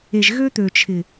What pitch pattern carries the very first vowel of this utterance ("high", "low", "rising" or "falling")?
low